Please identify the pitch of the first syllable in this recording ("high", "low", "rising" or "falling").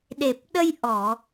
low